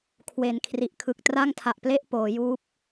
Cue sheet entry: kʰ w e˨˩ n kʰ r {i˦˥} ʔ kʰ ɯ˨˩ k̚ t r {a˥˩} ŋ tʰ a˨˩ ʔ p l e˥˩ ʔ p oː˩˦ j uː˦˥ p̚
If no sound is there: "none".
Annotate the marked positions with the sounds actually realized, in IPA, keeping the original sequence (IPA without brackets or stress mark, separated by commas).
i˨˩, a˥˩